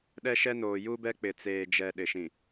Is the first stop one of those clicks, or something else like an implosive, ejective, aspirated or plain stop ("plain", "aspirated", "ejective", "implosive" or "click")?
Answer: implosive